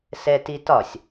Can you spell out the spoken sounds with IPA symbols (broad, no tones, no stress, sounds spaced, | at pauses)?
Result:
s ɛ t i t ɒ sʲ